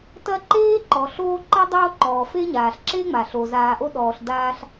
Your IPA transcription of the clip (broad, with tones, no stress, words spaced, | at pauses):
tɐ˦ǃeː˥ ǃɔ˩ɬoː˦ǃɐ˥ dˤoː˦ ǃɔː˩fe˥ ɲaː˩ɬǁe˥ŋ͡ma˩ ɬo˩zaː˨ʔo˦ ɗɔː˨ɬdaː˦ɬ